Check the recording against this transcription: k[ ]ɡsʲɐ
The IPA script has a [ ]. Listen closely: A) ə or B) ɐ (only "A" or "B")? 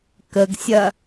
A